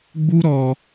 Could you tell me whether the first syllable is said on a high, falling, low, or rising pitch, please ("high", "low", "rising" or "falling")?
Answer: high